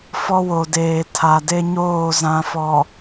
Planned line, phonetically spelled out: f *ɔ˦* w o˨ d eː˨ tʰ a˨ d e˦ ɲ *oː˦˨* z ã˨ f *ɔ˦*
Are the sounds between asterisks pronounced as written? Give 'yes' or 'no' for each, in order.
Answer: yes, yes, no

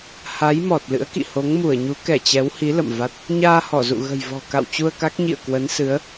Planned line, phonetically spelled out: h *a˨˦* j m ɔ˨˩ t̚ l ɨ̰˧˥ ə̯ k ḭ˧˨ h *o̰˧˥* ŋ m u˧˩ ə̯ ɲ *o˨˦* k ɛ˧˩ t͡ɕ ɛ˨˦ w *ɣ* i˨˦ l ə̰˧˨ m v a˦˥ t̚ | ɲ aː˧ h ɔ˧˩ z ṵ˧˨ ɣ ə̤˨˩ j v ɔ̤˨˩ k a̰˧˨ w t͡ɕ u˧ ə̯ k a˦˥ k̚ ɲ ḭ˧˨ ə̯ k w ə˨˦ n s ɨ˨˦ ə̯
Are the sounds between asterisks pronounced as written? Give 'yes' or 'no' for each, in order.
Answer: yes, no, no, no

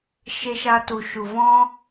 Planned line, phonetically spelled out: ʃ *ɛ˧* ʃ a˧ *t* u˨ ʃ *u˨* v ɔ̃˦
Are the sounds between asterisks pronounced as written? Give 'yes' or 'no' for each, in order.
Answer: no, yes, yes

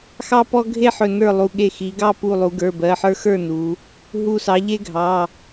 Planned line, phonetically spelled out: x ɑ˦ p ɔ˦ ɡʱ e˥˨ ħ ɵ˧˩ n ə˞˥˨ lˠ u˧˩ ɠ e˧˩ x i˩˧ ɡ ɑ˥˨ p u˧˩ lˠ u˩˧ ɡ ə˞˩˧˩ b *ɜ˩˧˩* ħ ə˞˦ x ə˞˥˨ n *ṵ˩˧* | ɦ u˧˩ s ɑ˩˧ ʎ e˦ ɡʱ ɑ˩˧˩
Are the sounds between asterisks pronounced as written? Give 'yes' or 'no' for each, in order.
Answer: yes, no

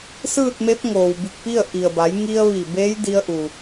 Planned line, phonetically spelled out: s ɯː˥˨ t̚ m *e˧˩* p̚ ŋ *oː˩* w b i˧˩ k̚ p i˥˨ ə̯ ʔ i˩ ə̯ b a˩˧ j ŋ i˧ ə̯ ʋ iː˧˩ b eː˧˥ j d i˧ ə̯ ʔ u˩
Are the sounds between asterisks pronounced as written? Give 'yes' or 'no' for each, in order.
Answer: no, yes

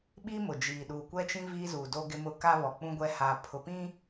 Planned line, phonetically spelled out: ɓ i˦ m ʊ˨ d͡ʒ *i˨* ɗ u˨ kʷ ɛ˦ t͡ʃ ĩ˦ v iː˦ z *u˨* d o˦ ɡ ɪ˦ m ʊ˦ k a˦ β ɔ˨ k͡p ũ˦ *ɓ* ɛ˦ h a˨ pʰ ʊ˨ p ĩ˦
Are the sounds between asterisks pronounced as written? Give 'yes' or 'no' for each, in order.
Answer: no, yes, no

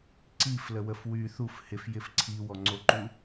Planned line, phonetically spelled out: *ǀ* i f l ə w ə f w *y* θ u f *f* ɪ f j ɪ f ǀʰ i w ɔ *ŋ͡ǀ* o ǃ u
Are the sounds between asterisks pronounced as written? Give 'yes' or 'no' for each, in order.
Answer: yes, yes, no, yes

